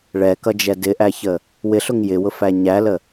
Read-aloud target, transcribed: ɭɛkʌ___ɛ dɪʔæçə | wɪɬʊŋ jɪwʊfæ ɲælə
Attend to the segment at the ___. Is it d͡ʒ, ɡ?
d͡ʒ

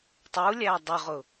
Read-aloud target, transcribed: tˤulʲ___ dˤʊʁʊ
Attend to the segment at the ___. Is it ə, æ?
æ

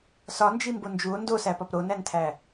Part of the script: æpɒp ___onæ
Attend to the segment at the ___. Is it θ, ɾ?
ɾ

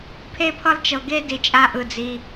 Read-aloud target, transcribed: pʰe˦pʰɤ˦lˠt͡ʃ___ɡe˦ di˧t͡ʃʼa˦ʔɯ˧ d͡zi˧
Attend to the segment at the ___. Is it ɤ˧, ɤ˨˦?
ɤ˧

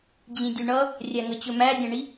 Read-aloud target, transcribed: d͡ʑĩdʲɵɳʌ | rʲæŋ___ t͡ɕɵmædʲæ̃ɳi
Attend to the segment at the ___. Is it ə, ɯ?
ə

